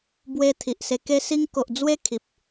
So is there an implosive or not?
no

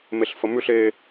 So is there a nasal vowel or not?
no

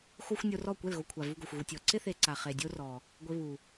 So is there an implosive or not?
no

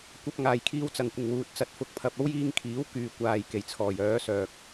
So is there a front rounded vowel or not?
yes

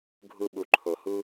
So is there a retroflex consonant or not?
no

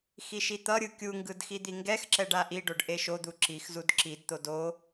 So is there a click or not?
yes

